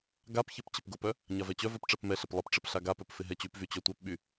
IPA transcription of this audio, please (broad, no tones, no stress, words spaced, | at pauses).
ɡapçɪp t͡ɕɪpɡʊpœ | ɲavɛt͡ɕœvœp ʈ͡ʂɛpmɛɬɪp lˠɪpʈ͡ʂɪp ɬaɡapœp fɪɦɛt͡ɕypvy t͡ɕœtʷœpɓy